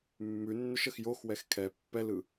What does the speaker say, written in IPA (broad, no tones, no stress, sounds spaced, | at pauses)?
mː ʉ nː ʏ ʃ ə x j o x w ɛ x kʰ ɛ pː ɛ l ɯ